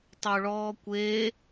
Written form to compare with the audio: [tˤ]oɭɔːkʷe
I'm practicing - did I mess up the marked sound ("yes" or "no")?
no